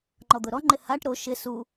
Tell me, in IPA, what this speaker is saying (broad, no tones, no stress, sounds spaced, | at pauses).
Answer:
ŋ͡ǃ ɔ d̪ ʊ ɾ ɔ ŋ͡ǃ ɪ h a ʈ ɾ o ʃ ɪ s u